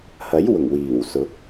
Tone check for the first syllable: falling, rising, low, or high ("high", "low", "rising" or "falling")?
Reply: rising